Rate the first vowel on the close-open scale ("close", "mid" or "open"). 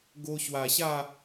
mid